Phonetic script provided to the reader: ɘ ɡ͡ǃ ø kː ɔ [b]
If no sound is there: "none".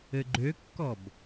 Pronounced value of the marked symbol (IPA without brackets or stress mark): b